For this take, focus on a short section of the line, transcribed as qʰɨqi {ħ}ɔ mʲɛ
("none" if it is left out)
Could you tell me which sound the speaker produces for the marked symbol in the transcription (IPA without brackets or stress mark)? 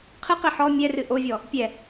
ħ